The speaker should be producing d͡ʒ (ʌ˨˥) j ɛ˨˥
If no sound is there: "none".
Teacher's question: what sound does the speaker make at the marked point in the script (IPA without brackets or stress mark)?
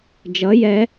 ʌ˨˥